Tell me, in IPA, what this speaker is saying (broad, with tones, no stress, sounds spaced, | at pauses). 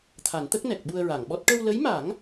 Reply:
t̪ʰ a˨˩˦ n t̪ ə˦˥ k̚ n ɛ˨˩ k̚ ɓ u˧ ə̯ ɹ a˨˩˨ ŋ ɓ ɔ˦˥ t̚ ʈ ə˧ w l ə˧˥ j m a˨˩˦ ŋ